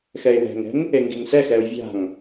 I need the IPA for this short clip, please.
xɛɪ̯wɛ̤ŋɛ̤ŋ | eŋɡiŋsɛxɛʊ̯ vʲa̤ŋ

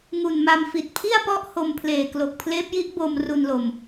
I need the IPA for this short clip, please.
ŋu˨˩nma˧m fi˨˩t̚pʰi˥˩a̯ pɔ˥˩ʔho˧mpʰleː˨˩ klo˨˩k̚ pʰleː˦˥p̚ji˦˥ʔ bo˧mru˧n lo˧m

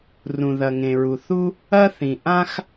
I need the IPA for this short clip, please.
rũ˩ðɐ˩ŋẽ˩ɹu˩ θu˥ | ɐ˥ θĩ˩ ʔã˥x

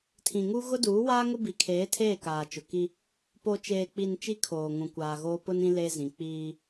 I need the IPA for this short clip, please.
tʰĩ˨ŋu˦ ɣʊ˦duː˨˦waː˦ ŋʊ˦bi˨kʰeː˨˦tʰeː˦˨ kaː˨t͡ʃʊ˨ki˦ | po˨t͡ʃeː˨k͡pi˨n t͡ʃi˦kʰoː˨ ŋũ˨kʷaː˨ɣoː˦ pʊ˦nĩ˦ le˦zĩ˨ k͡piː˦

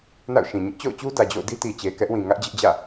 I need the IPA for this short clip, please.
na̰˦˨ʊ̯ʃĩ˨ ɲɪ˦ʔt͡ɕo̰˦˨ʊ̯t͡ɕu˦ dä˨d͡ʑo̰˦˨ʊ̯ di˦ti˨t͡ɕe˨ kɛ˦ʔwĩ˨ ŋä˦ʔd͡ʑɪ˦ʔd͡ʑä̰˦˨

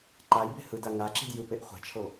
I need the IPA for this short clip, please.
ǃajbe̤ hɯda ŋaǁi̤d jɯpeʔ χʷa̤t͡ʃʰo

